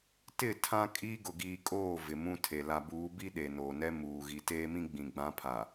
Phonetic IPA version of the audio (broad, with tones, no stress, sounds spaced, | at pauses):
t ɪ˦˨ tʰ ã˦ kʼ iː˦ ɡ ʊ˨ ɡ iː˨ kʼ oː˦˨ v ɪ˨ m ũ˦ tʰ e˨ l a˨ b uː˨˦ b i˦ ɗ e˨ n oː˨ n ɛ˦ m uː˨ ɣ i˨ t eː˦ m ĩ˦ ɡ͡b ĩ˨ ɡ͡b ã˨˦ pʰ a˨